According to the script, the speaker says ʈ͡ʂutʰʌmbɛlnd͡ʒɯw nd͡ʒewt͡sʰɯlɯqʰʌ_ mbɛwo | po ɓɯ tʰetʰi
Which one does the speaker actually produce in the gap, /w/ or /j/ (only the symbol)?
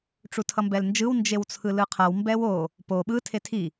w